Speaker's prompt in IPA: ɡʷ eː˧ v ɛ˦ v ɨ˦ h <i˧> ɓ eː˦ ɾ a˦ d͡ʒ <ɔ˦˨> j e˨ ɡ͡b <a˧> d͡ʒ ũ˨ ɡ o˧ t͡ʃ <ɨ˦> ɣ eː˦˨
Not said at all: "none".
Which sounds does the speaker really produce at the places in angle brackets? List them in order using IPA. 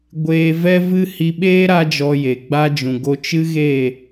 i˧, ɔ˧, a˧, ɨ˦

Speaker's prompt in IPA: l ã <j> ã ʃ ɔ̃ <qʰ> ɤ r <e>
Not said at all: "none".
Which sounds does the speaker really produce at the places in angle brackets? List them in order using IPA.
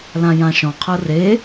j, qʰ, e

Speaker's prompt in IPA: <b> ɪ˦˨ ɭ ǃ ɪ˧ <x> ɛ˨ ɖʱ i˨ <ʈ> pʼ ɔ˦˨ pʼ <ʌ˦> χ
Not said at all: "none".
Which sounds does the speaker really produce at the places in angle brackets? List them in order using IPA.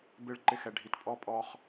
b, x, t, ɔ˦

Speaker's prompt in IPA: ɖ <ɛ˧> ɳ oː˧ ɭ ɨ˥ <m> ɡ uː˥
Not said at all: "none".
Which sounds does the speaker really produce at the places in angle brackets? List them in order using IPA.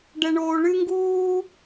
ɛ˧, ŋ

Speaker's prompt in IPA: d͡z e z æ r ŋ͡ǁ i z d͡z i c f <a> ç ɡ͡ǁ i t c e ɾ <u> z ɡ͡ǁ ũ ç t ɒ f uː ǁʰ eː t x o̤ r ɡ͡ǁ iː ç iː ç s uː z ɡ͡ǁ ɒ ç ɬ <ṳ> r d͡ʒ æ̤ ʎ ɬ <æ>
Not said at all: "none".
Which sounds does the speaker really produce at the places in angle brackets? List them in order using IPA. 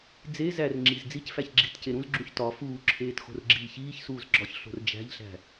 æ, ũ, o̤, æ̤

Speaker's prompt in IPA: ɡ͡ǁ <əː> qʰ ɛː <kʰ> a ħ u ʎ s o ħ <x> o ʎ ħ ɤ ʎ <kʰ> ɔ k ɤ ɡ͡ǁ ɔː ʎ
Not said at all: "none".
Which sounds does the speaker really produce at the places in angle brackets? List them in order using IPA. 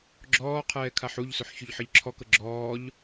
ɔː, kʰ, ç, ǁʰ

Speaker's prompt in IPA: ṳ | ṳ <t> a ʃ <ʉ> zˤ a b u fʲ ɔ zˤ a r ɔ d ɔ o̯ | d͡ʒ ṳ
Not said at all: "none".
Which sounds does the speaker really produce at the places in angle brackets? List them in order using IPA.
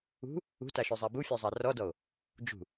t, ʉ

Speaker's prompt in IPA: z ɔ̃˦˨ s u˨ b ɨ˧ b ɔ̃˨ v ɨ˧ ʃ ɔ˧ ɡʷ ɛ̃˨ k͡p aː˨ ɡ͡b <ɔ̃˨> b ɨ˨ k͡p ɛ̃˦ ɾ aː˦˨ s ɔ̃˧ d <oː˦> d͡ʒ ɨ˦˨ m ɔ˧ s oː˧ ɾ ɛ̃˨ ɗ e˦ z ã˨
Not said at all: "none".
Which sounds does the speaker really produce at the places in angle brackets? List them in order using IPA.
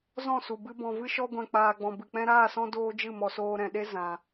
ɔ̃˨, oː˦

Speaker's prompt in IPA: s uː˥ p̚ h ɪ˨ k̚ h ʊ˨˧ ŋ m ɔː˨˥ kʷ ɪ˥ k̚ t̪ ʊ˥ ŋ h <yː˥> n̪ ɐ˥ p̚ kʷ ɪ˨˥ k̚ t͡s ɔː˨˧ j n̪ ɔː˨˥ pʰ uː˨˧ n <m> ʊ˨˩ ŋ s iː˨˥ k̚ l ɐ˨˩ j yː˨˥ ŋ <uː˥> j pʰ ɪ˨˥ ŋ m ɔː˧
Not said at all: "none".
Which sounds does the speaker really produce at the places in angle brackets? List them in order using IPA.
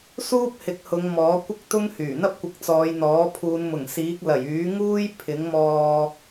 yː˨˩, m, uː˥

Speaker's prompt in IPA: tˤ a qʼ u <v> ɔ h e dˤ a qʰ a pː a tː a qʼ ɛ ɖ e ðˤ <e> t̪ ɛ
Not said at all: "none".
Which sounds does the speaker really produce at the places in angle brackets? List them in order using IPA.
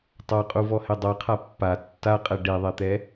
v, e

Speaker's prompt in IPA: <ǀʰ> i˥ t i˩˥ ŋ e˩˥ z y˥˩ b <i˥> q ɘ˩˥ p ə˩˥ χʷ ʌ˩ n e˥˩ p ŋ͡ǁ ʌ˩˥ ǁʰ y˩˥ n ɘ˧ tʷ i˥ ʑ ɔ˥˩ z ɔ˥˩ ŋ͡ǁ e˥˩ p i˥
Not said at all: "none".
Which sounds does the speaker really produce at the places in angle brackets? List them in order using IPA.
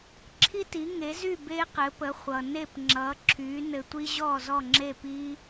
ǁʰ, e˥

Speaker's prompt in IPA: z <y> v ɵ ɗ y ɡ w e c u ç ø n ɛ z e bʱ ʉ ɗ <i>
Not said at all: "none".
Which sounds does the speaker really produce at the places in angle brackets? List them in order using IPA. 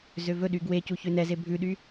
ø, y

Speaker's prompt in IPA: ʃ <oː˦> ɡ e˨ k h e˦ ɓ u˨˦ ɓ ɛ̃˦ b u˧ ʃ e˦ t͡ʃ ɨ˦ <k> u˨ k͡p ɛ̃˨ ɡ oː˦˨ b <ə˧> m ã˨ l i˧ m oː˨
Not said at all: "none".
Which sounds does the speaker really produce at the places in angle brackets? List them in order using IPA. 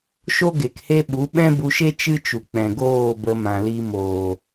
o˦, t͡ʃ, ə˧

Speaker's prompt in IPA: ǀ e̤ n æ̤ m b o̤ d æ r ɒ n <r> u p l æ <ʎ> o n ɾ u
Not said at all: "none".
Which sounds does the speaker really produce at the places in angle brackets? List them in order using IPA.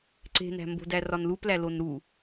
l, l

